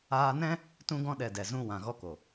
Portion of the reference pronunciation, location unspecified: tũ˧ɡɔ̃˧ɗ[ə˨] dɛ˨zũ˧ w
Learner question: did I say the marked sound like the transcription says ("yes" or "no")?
no